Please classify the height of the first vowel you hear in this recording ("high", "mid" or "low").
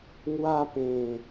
low